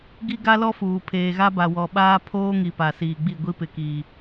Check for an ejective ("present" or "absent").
absent